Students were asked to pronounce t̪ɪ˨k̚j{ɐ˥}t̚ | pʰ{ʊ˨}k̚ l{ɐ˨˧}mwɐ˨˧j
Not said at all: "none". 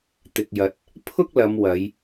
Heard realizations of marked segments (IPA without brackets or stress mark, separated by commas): ɐ˨, ʊ˥, ɐ˨˧